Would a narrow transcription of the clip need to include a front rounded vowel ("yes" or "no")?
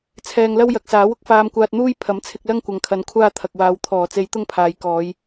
no